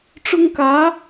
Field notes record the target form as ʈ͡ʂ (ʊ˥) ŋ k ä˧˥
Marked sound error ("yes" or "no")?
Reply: no